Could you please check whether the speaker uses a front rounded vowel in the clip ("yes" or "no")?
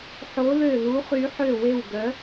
yes